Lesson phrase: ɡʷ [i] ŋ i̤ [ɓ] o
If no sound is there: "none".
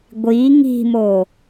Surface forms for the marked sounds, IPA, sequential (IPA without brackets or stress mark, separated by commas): i, m